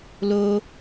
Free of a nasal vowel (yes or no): yes